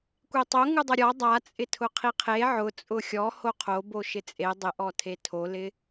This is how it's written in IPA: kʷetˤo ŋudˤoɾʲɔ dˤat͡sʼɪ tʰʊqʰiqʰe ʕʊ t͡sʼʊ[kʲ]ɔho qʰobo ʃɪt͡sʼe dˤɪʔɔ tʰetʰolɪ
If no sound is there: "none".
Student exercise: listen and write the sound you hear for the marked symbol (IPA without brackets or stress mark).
xʲ